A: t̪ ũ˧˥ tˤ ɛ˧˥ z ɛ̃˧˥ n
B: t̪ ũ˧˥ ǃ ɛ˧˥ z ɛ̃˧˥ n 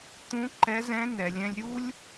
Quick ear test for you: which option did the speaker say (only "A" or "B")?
B